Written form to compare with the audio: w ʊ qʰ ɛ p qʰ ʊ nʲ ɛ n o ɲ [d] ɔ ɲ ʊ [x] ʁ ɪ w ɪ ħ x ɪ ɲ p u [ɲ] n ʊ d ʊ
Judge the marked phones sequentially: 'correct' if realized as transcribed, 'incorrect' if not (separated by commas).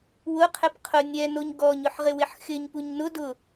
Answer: incorrect, incorrect, correct